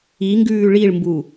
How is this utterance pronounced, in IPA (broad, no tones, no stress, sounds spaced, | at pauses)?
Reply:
i ŋ ɡ ʉː ɭ i ɭ m b u